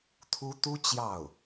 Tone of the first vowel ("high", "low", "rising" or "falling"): high